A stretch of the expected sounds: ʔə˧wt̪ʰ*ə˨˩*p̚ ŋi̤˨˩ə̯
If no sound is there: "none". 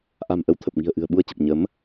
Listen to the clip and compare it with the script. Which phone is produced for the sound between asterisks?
ə˨˩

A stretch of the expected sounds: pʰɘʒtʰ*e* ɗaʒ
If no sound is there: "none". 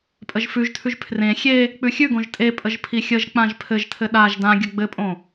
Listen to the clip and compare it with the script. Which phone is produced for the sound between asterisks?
ɘ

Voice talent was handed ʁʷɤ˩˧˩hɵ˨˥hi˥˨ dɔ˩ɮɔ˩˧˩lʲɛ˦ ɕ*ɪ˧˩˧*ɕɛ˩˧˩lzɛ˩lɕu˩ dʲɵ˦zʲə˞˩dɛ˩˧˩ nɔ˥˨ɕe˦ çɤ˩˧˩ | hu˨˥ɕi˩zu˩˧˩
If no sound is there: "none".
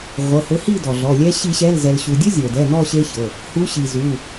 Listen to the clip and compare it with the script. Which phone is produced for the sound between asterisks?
i˧˩˧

